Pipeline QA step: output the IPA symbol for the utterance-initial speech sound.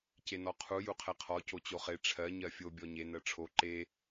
c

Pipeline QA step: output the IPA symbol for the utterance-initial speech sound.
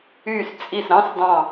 y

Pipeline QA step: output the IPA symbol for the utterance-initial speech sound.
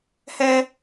h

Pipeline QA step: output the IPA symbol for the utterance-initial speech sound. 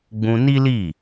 ɡ͡b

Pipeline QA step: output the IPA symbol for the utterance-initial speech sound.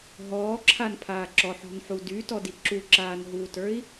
ɦ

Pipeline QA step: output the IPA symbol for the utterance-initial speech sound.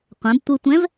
qʷ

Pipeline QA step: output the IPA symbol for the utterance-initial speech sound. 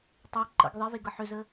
tˤ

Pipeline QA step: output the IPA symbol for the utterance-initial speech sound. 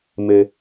m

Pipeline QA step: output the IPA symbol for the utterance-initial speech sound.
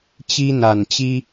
t͡ɕ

